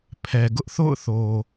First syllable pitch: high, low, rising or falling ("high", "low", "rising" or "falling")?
low